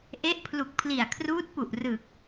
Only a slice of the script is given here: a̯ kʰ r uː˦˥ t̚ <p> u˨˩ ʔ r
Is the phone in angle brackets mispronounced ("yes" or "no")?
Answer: no